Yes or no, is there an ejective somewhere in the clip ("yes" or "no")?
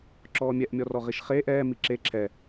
no